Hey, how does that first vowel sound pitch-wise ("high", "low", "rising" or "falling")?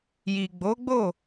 low